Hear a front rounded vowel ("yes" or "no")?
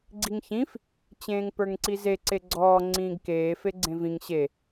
no